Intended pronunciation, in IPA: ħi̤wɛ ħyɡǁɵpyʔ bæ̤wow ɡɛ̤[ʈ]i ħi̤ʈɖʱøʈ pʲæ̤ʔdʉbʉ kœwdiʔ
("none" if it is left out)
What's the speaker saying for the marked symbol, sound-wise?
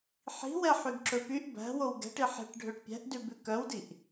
ʈ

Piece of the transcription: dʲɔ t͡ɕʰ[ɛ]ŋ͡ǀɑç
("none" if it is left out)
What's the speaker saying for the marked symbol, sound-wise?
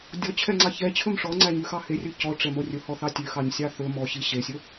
ɛ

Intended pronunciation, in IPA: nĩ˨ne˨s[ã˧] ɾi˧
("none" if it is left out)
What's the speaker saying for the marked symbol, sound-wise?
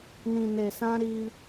ã˧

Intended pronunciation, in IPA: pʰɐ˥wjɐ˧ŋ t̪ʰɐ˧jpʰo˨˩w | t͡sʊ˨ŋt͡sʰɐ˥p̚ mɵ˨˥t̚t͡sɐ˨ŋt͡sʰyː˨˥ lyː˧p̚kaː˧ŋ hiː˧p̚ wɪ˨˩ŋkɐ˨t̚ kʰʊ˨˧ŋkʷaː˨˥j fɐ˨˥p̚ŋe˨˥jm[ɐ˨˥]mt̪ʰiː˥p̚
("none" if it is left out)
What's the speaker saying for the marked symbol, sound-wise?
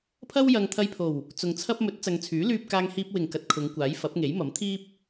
ɐ˨˥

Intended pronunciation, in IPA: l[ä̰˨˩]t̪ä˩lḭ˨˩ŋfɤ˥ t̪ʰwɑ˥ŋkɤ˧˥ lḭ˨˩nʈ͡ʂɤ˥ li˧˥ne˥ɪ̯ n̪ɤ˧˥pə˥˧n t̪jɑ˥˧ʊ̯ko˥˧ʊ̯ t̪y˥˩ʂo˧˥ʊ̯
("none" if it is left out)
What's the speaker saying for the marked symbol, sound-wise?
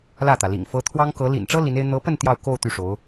ä˥˩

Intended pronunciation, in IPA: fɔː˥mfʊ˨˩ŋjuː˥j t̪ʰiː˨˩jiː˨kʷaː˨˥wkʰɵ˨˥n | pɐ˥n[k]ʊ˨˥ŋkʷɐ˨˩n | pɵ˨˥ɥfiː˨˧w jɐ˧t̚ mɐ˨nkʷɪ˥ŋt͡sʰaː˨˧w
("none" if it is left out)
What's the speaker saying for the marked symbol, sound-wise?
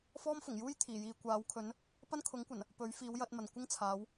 kʰ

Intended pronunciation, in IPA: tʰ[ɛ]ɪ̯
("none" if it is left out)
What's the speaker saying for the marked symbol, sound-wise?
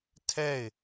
ɛ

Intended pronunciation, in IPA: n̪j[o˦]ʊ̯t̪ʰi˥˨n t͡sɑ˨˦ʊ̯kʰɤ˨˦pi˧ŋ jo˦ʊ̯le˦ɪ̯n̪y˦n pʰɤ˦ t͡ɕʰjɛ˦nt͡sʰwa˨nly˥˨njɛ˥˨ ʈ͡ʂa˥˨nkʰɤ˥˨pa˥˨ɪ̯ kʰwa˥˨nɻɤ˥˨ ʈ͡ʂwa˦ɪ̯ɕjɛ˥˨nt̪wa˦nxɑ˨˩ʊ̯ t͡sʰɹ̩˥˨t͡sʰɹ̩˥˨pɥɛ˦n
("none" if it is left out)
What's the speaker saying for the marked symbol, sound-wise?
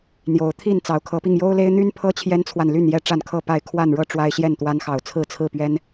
o˨˦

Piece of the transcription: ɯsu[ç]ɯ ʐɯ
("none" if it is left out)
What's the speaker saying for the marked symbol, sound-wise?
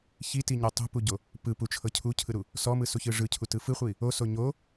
ç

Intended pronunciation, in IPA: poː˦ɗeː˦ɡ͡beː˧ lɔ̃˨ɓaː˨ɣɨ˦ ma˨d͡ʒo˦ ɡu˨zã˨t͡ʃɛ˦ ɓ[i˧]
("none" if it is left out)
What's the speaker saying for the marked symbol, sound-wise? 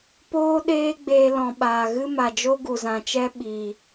i˨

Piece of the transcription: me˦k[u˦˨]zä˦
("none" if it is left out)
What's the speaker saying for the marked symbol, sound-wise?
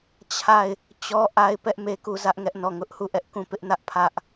u˦˨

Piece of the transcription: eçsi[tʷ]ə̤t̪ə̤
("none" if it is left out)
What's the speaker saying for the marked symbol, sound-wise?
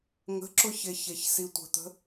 tʷ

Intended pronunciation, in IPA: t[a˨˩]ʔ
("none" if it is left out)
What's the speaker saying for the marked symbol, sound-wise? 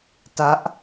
a˦˥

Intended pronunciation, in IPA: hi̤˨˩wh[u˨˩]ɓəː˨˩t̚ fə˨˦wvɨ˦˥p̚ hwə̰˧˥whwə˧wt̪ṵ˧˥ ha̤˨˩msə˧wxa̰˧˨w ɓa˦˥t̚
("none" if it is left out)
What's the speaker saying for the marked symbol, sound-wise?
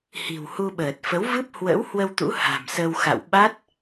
u˧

